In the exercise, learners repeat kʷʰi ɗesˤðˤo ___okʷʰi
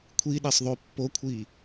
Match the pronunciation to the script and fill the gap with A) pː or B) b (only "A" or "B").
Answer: A